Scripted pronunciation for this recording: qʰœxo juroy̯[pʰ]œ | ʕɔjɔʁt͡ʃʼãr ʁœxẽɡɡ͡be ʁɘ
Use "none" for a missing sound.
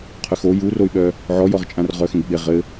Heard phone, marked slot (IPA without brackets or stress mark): ɓ